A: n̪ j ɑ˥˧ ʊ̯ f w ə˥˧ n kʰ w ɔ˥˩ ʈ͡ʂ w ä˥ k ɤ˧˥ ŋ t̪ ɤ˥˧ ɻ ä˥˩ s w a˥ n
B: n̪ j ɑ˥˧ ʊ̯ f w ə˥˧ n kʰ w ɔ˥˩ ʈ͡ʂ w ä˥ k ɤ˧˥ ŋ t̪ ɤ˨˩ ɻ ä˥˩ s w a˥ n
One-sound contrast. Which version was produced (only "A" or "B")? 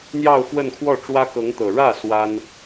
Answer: B